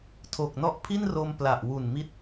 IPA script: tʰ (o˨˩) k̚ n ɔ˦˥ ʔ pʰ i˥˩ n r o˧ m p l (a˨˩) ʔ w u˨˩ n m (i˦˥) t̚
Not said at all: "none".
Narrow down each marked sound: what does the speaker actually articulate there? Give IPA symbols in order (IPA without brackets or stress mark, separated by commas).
o˨˩, a˨˩, i˦˥